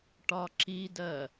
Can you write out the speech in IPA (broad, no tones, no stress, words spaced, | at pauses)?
ʈɒǁidɜ